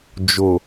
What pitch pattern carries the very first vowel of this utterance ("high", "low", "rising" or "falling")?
low